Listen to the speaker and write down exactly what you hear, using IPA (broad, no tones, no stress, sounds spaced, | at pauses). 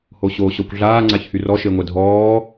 h o ɕ oː ɕ ɔ kʷ ɮ aː ŋ͡ǀ a ç h y r ɔ ʃ e ŋʷ ɛ dʱ ɔː